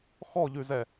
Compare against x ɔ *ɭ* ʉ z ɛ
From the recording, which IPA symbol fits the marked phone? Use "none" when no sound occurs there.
ʎ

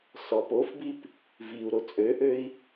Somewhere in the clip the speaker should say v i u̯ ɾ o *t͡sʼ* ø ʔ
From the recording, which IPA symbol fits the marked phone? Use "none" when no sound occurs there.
t͡sʼ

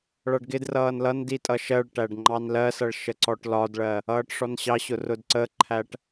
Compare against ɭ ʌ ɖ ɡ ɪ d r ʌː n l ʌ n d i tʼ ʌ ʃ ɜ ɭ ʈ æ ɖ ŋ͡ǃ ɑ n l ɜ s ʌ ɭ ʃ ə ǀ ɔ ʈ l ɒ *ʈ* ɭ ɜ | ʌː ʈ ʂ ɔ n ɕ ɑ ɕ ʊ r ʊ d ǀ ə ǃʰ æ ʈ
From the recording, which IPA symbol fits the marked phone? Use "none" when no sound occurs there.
d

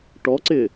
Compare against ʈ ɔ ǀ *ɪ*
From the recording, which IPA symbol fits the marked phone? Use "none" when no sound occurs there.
ɪ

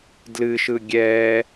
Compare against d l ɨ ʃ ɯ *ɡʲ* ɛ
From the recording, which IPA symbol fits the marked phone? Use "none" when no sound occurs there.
ɡʲ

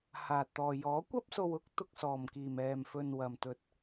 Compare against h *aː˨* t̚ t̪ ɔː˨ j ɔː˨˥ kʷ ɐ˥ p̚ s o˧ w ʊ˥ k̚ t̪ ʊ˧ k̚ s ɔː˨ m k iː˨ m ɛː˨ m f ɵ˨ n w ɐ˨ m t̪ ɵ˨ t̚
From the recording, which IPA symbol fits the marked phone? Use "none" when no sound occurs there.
aː˨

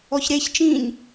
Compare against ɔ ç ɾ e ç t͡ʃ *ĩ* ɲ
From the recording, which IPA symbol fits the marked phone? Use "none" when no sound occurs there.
ĩ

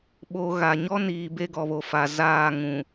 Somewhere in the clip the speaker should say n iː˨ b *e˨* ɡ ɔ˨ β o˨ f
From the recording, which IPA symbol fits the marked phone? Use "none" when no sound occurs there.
e˦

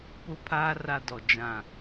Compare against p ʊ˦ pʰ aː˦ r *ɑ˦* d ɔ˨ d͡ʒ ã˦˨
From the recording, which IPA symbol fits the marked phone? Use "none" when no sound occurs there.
a˦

